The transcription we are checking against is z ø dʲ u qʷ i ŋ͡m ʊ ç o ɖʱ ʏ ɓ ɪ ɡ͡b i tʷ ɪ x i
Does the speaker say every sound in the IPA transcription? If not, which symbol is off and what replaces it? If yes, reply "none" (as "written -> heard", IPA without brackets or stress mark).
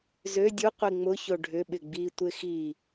none